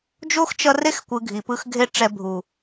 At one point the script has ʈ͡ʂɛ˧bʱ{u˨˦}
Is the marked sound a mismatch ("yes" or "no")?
yes